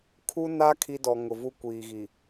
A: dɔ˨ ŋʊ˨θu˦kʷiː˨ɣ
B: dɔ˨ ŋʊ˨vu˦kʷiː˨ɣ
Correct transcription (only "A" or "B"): B